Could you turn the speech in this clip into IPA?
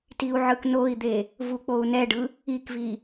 t i u̯ ʕ ɯ k n o i̯ d̪ e | v u k͡p o u̯ n ɛ ɖ ɯ | i k v i

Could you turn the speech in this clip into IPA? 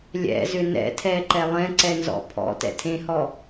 lʲ ɛ̰ z ʏ n ɛ̰ tʰ ɛ ǃ ɛ lˠ ɛ̃ ǀ ɛ n z ɔ̰ pʰ ɔ̰ t ɛ̰ tʰ ẽ h ɔ

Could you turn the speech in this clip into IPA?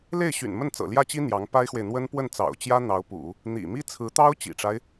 l e˥˩ ɪ̯ ɕ y̰˨˩ n m ə˥˩ n t͡s ɤ̰˨˩ l j ä˥˩ t͡ɕ i˥ n̪ j ɑ˧˥ ŋ p a˥ ɪ̯ x w e˨ ɪ̯ n̪ w ə˥ n p w ə˥˩ n t͡s ɑ̰˨˩ ʊ̯ t͡ɕ j ä˥ n̪ ɑ˧˥ ʊ̯ p ṵ˨˩˦ | n̪ ḭ˨˩ m i˥ t͡sʰ ɹ̩˧˥ t̪ ɑ˥ ʊ̯ t͡ɕ ḭ˨˩ ʈ͡ʂ a˦ ɪ̯

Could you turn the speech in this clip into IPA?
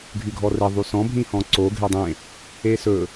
ɡʱ y ɡʱ ɔ r e ðˤ y s ɔ̃ bʱ ĩ h ɔ̃ ǀ o ɡʱ e dˤ ẽ | e s ɵ

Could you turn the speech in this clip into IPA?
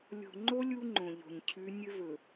lʲ o̤˨ ŋ͡ǃ o˦ lʲ u˦ ŋ͡ǃ õ˨ ʎ o̤˨ ɲ cʰ ʉ˨˦ nʲ ɵ˦ v ɵ˨

